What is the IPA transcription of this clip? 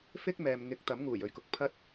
fɪ˥k̚mɛː˨m ŋɪ˨˥k̚ t̪ɐ˨˥mŋuː˨˩jɵ˧ɥkʊ˨k̚ pʰɐ˥t̚

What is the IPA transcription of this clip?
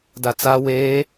dat͡sa weː

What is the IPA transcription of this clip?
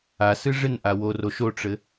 asɨ ʐɪnʔaworo ʃoʈ͡ʂɘ

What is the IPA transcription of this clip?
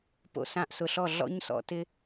po̰˧ sã˧ʔsʊ˨ɬɔ˦˨ ɮɔ̰˦ɲsɔ̰˦tɪ˦

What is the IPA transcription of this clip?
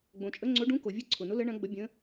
ɡ͡bõ˩t͡ʃʼə˧˥ŋ͡ǀo˧˥ ɖũ˧˥ko˩ vʲɯ˧˥ǀʰʊ˩nʊ˧˥ lə˧˥ ɳɐ̃˧˥ɡ͡bə˧˥ bʲə̃˧˥

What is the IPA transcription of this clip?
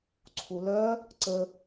ǀʰulœ | ǀə

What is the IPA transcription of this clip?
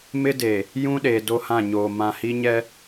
mɪ˦de˨ | jũ˦ɗe˨ do˦hã˦˨ɲoː˨ mã˨hi˦ɲɛ˦

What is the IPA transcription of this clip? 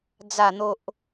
d͡za˨˩n̪o˨ʔ

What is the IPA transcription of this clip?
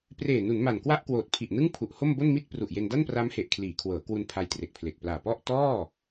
preː˨˩nu˩˦n ma˨˩nkwa˥˩ʔkwoː˨˩t̚pʰi˨˩ʔ nɯ˥˩ŋpʰu˨˩ʔho˥˩m bo˥˩nmi˥˩t̚ pru˨˩ʔje˧n da˥˩npra˦˥mhe˨˩ʔ kʰliː˩˦kʰwɤː˩˦ kwu˧n pʰa˧jtre˨˩k̚pʰle˨˩k̚plaː˨˩ pɔ˥˩ʔ tɔː˥˩

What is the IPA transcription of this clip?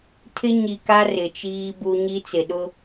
tʰɪ˦ɲi˨ka˦ rɪ˨t͡ʃiː˦bu˦ ɲi˦t͡sɪ˨ ɗʊ˦

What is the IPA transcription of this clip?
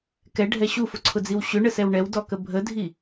kɛɖʱɛ ɕufʊǀʰʊd͡ziw ɕʏɳəsɛw ɳɛwdɔkə bʱədʱi

